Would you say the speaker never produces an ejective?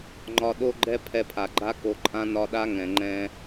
no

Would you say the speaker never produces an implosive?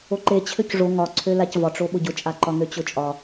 no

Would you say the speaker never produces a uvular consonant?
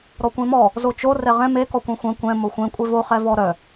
no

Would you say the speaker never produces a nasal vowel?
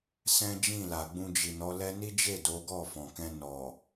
no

